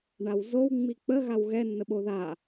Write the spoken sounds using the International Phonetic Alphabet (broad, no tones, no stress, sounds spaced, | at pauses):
ɳ a w z o w ŋ͡m i k͡p ə ɣ a w ɣ ɛ nː ə ɓ o ð a